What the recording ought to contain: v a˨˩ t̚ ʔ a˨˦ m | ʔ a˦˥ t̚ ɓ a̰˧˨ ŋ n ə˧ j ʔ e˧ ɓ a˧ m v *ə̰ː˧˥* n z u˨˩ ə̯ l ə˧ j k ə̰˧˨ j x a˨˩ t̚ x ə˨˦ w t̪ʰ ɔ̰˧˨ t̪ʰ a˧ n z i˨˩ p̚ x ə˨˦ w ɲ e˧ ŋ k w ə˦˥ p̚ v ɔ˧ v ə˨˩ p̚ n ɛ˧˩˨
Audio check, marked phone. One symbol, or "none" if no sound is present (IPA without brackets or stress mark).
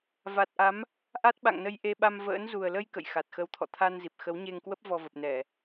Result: ə̰ː˧˥